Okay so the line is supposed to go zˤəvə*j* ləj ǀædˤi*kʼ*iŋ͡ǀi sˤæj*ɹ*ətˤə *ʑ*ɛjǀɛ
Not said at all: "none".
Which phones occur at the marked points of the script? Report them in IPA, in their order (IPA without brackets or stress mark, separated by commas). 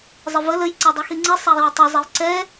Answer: none, x, w, zˤ